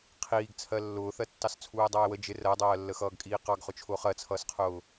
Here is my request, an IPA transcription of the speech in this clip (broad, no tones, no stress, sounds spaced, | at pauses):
qʰ iː ɡ t͡sʰ ɜ lː ʊː θ ɜ tː ɑ s t͡sʰ uː e̯ dˤ ʌː e̯ w ə d͡ʒ ɪ r ɜ dˤ ɜː lː ə x ʌː ɡ kʼ iː q ɑ ɡ χ ʊ t͡ʃʰ ʊː χ ɜ t͡sʰ ʌː s qʰ ʊː